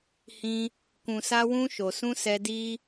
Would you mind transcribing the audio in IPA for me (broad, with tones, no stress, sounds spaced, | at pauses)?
h ĩ˧ | k ũ˨ s a˧ w ũ˧ ʃ o˨ s ũ˧ s ɛ˧ d i˧